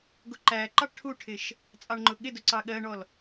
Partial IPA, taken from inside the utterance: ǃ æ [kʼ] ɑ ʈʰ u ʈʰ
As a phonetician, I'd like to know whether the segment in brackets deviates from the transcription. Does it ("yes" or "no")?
yes